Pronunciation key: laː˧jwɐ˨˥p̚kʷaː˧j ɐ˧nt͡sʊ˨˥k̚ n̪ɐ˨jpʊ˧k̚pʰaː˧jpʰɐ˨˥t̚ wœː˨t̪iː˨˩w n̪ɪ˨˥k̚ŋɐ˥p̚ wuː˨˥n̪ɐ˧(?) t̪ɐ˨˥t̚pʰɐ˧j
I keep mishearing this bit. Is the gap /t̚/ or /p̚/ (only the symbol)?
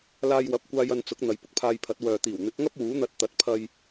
t̚